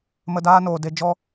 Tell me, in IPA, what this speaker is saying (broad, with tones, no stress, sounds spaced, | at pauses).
m ə˧ d aː˦ n oː˨ d e˧ d͡ʒ ɔ˧